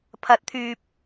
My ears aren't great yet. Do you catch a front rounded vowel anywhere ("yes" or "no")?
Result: yes